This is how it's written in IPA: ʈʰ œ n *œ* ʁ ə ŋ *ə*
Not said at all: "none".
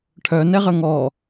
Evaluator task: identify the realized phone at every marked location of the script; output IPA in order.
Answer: ɛ, ɔ

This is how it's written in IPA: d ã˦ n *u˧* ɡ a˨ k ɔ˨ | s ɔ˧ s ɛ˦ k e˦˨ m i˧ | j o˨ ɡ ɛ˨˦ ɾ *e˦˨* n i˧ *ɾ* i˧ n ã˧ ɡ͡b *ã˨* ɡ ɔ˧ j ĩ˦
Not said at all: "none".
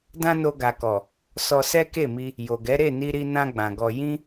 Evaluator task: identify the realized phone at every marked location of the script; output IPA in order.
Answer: o˧, e˦˨, ɾ, ã˨

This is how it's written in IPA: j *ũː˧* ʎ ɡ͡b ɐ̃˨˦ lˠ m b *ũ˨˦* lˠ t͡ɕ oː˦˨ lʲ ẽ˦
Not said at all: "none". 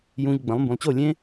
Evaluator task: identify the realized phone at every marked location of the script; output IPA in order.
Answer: ũː˧, ũ˨

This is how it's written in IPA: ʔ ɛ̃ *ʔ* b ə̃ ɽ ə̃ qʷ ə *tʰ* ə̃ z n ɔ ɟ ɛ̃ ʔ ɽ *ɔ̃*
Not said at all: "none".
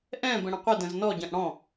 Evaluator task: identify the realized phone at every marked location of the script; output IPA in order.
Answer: none, d, ɔ̃

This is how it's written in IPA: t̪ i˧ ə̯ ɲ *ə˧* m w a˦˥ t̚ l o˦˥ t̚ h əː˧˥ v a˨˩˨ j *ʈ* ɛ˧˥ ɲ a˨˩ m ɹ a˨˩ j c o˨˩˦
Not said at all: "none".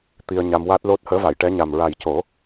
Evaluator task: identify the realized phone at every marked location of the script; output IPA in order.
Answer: a˧, ʈ

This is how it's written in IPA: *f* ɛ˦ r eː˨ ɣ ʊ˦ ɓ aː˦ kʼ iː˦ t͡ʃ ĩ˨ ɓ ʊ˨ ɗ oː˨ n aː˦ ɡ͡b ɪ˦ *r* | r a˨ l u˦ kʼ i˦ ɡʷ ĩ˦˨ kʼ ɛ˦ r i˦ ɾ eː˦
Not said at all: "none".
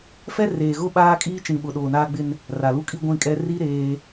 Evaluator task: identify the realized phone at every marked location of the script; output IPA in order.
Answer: f, n

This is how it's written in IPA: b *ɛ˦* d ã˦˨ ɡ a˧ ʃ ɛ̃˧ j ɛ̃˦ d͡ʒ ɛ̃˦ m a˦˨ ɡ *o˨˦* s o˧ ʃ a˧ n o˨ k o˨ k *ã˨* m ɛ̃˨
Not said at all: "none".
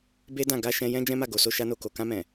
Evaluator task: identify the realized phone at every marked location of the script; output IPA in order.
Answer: e˦, o˨˦, ã˧

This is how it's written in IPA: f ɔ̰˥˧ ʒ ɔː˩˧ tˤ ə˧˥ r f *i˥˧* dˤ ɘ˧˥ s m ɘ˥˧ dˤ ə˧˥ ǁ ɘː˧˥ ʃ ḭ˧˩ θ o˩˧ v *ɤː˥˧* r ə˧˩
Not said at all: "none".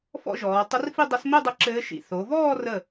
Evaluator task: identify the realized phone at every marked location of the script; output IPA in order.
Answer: i˥˧, ɔː˥˧

